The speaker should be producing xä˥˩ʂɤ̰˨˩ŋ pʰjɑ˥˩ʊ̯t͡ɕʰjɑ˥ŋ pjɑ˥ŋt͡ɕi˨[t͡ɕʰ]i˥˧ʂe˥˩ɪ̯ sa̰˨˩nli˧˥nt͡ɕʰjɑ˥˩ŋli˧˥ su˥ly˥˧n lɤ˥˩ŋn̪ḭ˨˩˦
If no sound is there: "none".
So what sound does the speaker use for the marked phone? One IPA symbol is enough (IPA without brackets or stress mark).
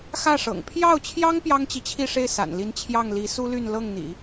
t͡ɕʰ